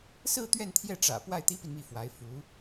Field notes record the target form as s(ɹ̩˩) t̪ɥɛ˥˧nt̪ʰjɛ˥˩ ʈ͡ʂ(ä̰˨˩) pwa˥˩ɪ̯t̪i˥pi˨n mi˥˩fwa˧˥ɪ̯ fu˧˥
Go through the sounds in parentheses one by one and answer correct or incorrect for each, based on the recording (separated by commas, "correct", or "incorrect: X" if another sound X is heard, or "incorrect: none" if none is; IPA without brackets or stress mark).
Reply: incorrect: ɹ̩˥˧, correct